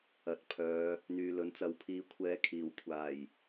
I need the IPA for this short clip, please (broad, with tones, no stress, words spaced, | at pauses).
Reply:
ɐ˨˥t̚pʰœː˨˧ | n̪yː˨lɵ˨˥n t͡sɐ˨wpʰiː˨˧ kʷʰɛː˨˥kʰiː˨˩wkʷʰaː˨˩j